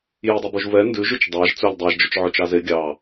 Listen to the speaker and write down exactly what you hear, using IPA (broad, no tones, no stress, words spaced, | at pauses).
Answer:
jidˤubuʒ vɛ ndʉʒʉt͡ʃ dˤɑʒ t͡sɵlʲ dˤæʒd͡ʒɵt͡ʃ ʕøt͡ʃɑze ɡʲɑ